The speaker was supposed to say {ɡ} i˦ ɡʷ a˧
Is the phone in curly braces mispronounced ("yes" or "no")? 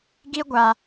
no